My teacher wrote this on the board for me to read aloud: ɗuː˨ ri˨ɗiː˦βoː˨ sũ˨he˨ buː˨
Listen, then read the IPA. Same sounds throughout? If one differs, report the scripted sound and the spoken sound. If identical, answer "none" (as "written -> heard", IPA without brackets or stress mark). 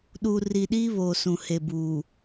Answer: none